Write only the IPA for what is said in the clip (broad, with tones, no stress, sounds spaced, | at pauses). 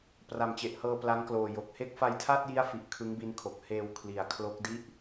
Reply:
p r a˨˩ m t͡ɕ e˨˩ ʔ h ɤː˧ p l a˦˥ ŋ k l oː˨˩ j o˨˩ k̚ h e˦˥ k̚ f a˧ j tʰ a˥˩ t̚ j i˦˥ a̯ f i˨˩ ʔ kʰ ɯ˦˥ ŋ b i˦˥ n kʰ o˨˩ k̚ h eː˧ w kʰ l i˨˩ a̯ kʰ l o˦˥ k̚ d i˥˩ ʔ